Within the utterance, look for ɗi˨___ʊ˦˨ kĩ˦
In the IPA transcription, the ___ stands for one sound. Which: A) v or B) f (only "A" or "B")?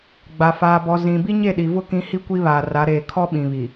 A